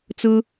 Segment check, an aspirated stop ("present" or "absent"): absent